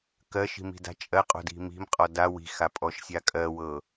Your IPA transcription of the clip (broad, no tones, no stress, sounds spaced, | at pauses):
k ɜ ʃ i̤ m i̤ d a̤ t͡ʃʼ ɜ qʼ o̤ d i̤ m i̤ m qʼ ɔ d a w i̤ x a pʼ ɔ ʃ sʲ a kʼ ɜ w ɤ